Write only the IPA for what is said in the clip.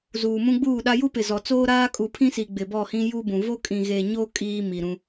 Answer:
zuː˨mũ˦ɡ͡buː˦˨ɗa˦ ju˦pɪ˨zɔ˨t͡soː˦ ɾaː˦kʼu˨pʰĩ˦si˨ ɡ͡bɪ˨bɔ˦˨hĩ˦ ju˦bũ˨ vo˦kʼĩ˨ɣe˨ɲo˦ kʼiː˦mi˨ɾũ˦

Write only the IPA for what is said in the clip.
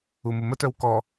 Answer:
umumətœw kɔ

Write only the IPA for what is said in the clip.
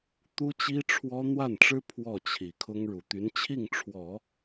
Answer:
t̪u˥t͡ɕi˥ʈ͡ʂʰwɔ˥ n̪wa˥˩nʈ͡ʂɻ̩˥ pʰwɔ˥˩t͡ɕʰi˨˩kʰʊ˥ŋ ɻu˨˩t̪y˧˥nt͡ɕʰi˥˩ŋʈ͡ʂʰwɔ˨˩˦

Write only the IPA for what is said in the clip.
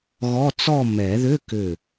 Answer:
ɣɔ˧˥˧t͡sɔ˥˧ mɛ˨˩˦ ðʏ˧˥˧ kʏ˧˩

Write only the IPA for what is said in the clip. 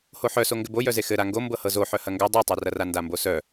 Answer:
hoħœso ŋɡɘbojœze xɘ ɾaŋɡo mbɤhɤzo ħœhɐŋɡœ dˤotˤœrɐra ndambosœ

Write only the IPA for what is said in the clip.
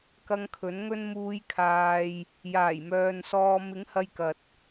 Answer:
kɐ˧ŋkʰɵ˨˥n ŋɵ˧nmuː˨˧jkʰaː˨j | jaː˨˩jmœː˨nsɔː˧ mɪ˨˥ŋhɐ˧jkɐ˨t̚

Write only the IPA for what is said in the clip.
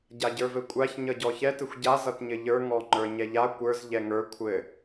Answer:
ɟaɟə˞vɘkʷʼaç ɲʌɟɔçɛ tɘxʷɟa zʌtɲɘʎə˞ ŋɔŋ͡ǃə˞ɲɛʎa kʷə˞z ʎɛŋə˞ kʷʰɘ

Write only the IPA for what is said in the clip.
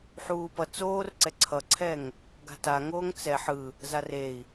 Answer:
ħuːpʌ t͡soːr ǀɛǀʰʌǀʰɛŋ | ɡa̤taŋoːŋ t͡sɛ ħɯ | zarei̯

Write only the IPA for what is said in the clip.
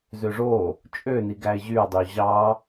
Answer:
zøʐo | t͡ʃʼøni ɡæɪ̯ʑyʊ̯dˤy ʑɑ

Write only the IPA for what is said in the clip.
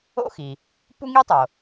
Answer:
o̰˥xi˩ | pu˥ŋi˥tˤo˩

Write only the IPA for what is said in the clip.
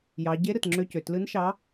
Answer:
jɑ˩˧ ɟe˧˥ ɾɯ˩tŋ͡ǁø˧cø˩ tlɯ˧˥nʃɑ˧˥

